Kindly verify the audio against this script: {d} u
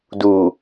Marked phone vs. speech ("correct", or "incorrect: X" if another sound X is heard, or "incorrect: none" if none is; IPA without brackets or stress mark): correct